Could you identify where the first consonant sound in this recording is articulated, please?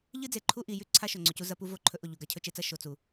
palatal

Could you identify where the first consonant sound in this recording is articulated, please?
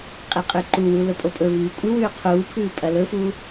uvular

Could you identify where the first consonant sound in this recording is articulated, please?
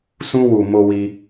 alveolar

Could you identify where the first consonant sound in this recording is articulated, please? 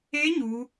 palatal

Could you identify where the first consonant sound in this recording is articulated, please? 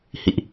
glottal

